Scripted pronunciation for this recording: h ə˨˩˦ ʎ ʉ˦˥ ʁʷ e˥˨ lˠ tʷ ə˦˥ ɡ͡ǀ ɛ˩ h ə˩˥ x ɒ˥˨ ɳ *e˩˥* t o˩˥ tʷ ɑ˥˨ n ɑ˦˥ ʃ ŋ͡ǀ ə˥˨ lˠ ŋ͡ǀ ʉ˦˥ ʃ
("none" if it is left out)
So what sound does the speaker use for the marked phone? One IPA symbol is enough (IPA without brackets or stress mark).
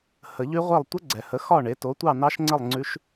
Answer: e˩˥